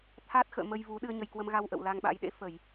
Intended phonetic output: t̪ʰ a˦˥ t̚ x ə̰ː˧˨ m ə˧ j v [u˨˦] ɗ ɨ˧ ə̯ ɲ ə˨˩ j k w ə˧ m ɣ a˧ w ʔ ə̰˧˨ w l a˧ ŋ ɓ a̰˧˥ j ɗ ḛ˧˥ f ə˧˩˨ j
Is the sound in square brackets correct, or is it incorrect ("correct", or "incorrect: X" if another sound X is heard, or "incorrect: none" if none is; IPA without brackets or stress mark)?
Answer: correct